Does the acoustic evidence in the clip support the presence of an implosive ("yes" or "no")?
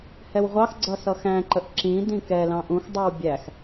no